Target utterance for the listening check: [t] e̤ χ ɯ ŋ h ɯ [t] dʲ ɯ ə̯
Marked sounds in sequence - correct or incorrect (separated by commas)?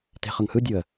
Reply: correct, incorrect